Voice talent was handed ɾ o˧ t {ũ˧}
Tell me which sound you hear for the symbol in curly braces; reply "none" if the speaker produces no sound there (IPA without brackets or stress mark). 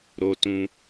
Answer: ũ˧